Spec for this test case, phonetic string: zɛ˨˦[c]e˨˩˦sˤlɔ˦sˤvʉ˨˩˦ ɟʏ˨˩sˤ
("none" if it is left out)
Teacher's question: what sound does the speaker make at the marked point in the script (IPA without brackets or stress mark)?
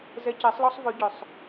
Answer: c